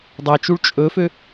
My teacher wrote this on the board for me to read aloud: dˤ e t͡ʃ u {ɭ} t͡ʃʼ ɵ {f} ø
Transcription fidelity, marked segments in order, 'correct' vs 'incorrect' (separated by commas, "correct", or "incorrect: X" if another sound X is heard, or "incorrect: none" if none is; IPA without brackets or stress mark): correct, correct